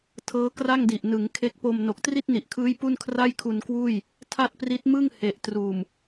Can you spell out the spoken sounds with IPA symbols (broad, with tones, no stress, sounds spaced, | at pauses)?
tʰ ɤː˦˥ k r a˥˩ ŋ d i˨˩ ʔ n ɯ˩˦ ŋ kʰ e˦˥ k̚ p o˧ m n o˨˩ k̚ t r i˥˩ t̚ n i˨˩ ʔ kʰ ɯː˦˥ j p u˥˩ n kʰ r a˥˩ j kʰ u˧ n k w uː˥˩ j | tʰ a˥˩ t̚ p r i˦˥ t̚ m ɯ˥˩ ŋ h e˨˩ ʔ t r uː˨˩ m